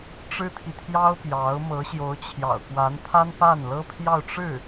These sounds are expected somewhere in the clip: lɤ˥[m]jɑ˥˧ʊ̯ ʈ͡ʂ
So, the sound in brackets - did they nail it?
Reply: no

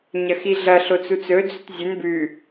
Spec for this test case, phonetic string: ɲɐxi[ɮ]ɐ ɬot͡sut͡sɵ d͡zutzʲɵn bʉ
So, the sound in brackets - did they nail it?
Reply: yes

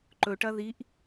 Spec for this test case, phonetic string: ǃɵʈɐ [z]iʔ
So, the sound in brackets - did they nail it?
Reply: no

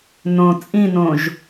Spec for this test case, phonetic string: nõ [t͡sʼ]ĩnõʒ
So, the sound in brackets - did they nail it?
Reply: yes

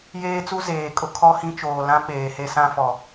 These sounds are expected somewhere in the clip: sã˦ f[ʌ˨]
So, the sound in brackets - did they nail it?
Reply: no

